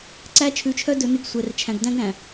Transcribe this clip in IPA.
ǀ æ˦ t͡ʃʰ ʉ˨˦ t͡ʃʰ œ˦ d ɵ˦ n y˦ ɡ sʷ ɛ˨ r t͡ʃʰ æ̃˨ ɡ d æ̃˦ ɡ ɾ æ̃˨

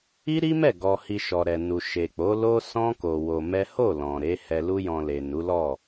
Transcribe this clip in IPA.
i˦ ɾ i˦ m ɛ˦˨ ɡ ɔ˧ h i˧ ʃ ɔ˨ ɾ ɛ˨ n u˨ ʃ e˨ k͡p o˨˦ l o˦ s ɔ̃˦ k o˧ w o˧ m ɛ˦ h o˦˨ l ɔ̃˨ ɾ e˨˦ h ɛ˧ l u˦ j ɔ̃˧ l e˨ n u˨˦ l ɔ˦˨

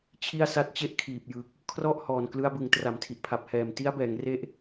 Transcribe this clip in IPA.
t͡ɕʰ i˥˩ a̯ s a˥˩ t̚ t͡ɕ e˥˩ ʔ kʰ iː˨˩ p̚ j ɯ˨˩ k̚ | kʰ r ɔ˥˩ ʔ h ɔː˨˩ n k l ɯ˧ a̯ b ɯ˩˦ ŋ t r a˨˩ m tʰ i˨˩ ʔ pʰ a˨˩ p̚ h ɛː˨˩ m t i˦˥ a̯ b ɛː˩˦ ŋ r e˦˥ ʔ

